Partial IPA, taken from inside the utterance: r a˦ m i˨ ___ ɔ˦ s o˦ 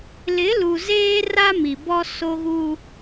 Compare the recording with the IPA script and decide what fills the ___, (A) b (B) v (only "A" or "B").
A